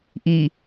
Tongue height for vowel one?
high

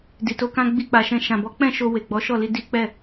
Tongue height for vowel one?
high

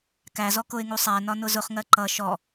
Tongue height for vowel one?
low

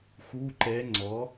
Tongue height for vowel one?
high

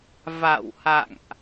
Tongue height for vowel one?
low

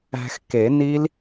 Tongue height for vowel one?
low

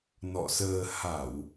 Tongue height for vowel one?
mid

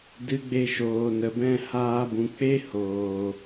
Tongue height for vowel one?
high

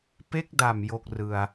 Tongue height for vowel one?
mid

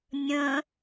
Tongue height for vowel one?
mid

